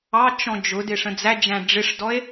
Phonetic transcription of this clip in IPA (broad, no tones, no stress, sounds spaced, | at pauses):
ɑ t͡ʃ ɔ̃ d͡ʒ ʊ d ɪ ʂ ə̃ d͡z æ d͡ʒ æ̃ ɖ͡ʐ ɪ ʂ d ɔ e̯